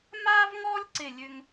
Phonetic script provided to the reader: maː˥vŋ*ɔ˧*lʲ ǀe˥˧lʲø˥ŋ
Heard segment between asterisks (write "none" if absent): ɔ˥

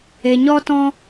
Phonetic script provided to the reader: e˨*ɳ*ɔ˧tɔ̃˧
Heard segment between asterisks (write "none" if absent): ɲ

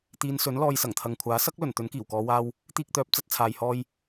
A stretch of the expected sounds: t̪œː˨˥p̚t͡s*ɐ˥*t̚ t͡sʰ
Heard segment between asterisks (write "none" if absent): ɐ˨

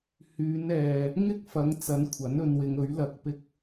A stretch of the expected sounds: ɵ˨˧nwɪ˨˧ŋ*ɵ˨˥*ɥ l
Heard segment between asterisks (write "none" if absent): ɵ˨˥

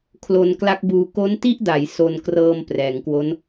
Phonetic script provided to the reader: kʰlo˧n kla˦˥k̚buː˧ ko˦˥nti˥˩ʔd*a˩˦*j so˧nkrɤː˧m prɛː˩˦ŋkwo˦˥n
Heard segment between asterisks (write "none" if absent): a˩˦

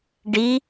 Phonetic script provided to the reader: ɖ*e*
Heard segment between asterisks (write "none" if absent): i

